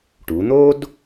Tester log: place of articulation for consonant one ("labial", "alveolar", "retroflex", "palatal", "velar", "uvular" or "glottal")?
retroflex